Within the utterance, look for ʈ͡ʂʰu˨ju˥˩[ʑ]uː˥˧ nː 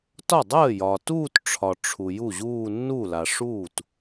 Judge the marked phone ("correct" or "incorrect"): correct